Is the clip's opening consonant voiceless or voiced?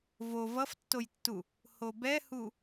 voiced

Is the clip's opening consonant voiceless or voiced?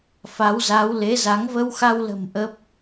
voiceless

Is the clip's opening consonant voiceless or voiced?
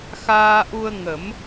voiceless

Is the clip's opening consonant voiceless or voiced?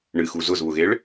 voiced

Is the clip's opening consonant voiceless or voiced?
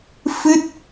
voiceless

